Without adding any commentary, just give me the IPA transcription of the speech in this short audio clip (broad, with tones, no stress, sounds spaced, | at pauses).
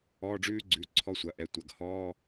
ɔː˧˥˧ ɖ͡ʐ ʉː˦˥ ɡ͡ǀ ʉ˩˧˩ ǀʰ ɔ˧˥˧ sʷ ɐ˩˧˩ ʔ ɛ˩˧˩ tʷ ɐ˩˧˩ ɡ h ɔː˧˥˧